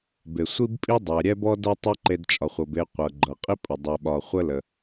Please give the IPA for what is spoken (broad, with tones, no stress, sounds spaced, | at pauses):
b e˩ sʷ i˥ b pʼ i˥ dˤ ɛ˩ ɾʲ ɛ˥ b ɔ˥ d ɤ˥ tˤ ɤ˥ ǃ e˧ d t͡ʃʼ ɒ˩ χʷ ɤ˩ b e˧ qʷ ɤ˩ ɡ͡ǃ ɤ˩ qʼ i˥ pʼ ə˩ dˤ e˩ ɓ ɒ˩ χʷ ə˥ l ə˩